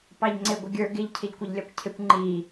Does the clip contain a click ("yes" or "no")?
yes